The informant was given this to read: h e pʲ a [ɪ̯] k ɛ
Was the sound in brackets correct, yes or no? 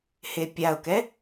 no